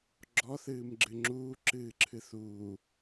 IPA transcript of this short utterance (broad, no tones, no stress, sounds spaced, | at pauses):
ɡ͡ǁ ɔ θ ɨː m ɡ͡ǁ ɨ ŋ͡ǁ uː ǁ ɨː ǁʰ ɨ θ uː